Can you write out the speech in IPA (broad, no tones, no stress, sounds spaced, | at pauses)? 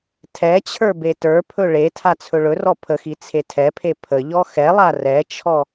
tʰ ɛ t͡ɕʰ ə˞ b e t ə˞ pʰ ɵ ɭ e tʰ a t͡sʰ ɵ ɭ ɵ r ɔ pʰ ə x i t͡sʰ e tʰ ɛ pʰ e pʰ ə ʎ ɔ x ɛ lˠ a r ɛ t͡ʃʰ ɔ